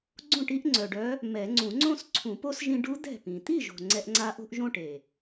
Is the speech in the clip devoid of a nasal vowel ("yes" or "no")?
no